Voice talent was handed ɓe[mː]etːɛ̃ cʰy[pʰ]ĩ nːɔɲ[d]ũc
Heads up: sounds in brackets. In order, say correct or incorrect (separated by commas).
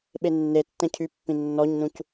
incorrect, incorrect, incorrect